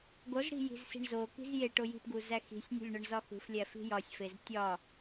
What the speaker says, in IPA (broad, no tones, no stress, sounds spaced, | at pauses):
ɡ o z ɽ i̤ j i̤ z s i̤ ɳ z o k i̤ z j e ʈ o j i̤ p ɡ u z æ x i̤ sʲ nʲ ṳ lʲ ɳ ɒ ɳ z ɒ x ṳ f lʲ æ f i̤ j ɒ sʲ f e z tʲ ɒ